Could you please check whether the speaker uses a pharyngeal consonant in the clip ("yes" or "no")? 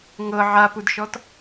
yes